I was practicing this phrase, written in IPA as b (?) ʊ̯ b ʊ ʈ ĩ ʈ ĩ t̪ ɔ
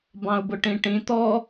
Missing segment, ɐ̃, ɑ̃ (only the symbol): ɑ̃